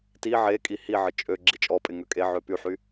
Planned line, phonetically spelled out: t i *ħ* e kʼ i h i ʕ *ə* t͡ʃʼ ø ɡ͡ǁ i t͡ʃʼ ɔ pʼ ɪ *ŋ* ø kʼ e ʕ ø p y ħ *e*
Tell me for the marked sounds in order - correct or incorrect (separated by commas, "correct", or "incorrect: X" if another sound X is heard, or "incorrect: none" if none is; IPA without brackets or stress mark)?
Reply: incorrect: ʕ, correct, correct, incorrect: y